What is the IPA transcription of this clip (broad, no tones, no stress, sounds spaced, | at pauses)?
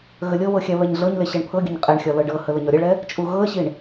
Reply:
ɣ ə lʲ ɤ β ɤ xʲ æ β ɛ ɲ ɮ ɤ ɲ l e ɕ ɛ ɳ pʰ ɤ ɡʲ ə ɲ qʼ ɛ ɳ xʲ ɒ l ɤ ɖ ɤ h ə l ə ɲ ɒ ɾʲ ɛ ɭ ɛ | t͡ʃʼ u ɣ ɤ ə̯ ɕ i ɳ